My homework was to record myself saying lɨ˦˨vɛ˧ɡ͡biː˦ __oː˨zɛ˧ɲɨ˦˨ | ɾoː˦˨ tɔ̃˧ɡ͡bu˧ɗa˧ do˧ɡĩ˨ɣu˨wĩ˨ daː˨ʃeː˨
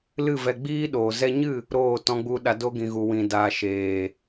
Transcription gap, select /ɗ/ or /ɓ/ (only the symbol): ɗ